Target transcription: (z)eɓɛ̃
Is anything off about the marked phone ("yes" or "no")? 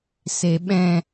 yes